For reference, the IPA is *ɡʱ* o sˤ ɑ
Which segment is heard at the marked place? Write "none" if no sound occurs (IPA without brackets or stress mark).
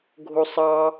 ɡʱ